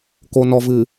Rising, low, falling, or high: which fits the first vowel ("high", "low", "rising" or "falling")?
low